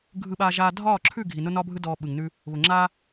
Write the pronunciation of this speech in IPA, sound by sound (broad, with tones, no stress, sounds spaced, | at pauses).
ɡʱ ɯ˧ ɓ aː˧ ʒ aː˧ dʱ ɒː˦˨ ǁʰ ʉ˦˨ ɡʱ i˨ n ʊ˦ n ɒː˦ bʱ ɯ˦ d ɔː˧ ɓ ɯ˨ ŋ n ʉ˦ | β ʊ˨ ŋ͡ǁ a˦